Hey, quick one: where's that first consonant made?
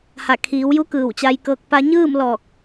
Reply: throat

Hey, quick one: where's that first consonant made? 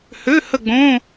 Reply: throat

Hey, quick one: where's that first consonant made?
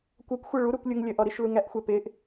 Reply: velum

